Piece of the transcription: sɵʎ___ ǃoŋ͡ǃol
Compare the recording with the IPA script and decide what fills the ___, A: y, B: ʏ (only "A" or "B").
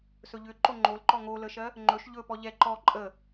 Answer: B